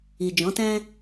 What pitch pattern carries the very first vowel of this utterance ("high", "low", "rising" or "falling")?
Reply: low